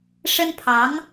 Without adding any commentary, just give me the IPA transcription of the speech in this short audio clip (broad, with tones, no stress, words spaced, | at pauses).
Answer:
ʂə˥npʰɑ˧˥ŋ